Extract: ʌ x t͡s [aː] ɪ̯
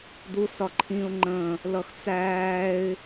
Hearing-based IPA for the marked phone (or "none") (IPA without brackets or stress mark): æː